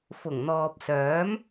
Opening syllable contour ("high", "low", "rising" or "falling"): low